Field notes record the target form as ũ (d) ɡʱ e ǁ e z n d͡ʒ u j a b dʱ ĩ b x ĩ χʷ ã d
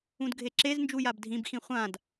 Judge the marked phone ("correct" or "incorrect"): correct